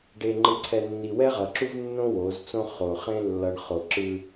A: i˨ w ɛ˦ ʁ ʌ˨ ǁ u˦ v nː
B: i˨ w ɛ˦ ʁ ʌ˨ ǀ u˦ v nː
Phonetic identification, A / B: A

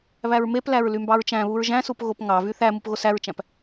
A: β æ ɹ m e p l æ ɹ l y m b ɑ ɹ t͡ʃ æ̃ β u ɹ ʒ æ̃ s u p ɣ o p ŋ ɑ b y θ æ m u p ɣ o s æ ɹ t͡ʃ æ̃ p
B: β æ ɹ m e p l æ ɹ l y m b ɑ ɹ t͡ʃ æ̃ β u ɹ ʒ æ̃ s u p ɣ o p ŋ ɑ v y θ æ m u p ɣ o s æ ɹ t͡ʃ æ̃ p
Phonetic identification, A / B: B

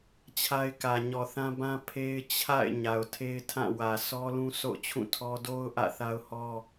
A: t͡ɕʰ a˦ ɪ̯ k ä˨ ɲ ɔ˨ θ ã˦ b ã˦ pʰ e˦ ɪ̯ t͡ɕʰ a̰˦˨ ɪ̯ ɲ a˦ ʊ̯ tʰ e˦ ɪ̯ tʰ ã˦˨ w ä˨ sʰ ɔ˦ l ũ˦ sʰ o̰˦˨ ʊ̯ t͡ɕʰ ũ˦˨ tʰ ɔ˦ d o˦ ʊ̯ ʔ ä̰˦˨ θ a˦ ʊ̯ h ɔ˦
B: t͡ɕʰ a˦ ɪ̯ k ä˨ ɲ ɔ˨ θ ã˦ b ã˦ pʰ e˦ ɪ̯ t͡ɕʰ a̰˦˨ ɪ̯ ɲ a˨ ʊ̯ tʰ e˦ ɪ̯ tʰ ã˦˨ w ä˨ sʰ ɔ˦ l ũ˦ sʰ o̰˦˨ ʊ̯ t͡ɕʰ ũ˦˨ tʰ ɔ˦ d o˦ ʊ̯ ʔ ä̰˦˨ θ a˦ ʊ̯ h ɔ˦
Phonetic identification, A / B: B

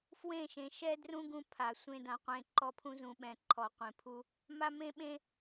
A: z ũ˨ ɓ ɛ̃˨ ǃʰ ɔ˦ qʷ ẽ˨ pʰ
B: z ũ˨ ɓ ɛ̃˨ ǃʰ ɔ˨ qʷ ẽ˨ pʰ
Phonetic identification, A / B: B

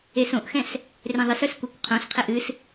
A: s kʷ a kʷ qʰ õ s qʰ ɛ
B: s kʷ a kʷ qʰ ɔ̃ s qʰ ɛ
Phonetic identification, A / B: A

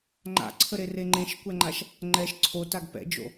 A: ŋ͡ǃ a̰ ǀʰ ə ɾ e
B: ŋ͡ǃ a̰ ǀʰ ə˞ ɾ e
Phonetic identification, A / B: A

